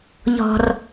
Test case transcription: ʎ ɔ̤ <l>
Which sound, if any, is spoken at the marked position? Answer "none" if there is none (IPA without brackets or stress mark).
r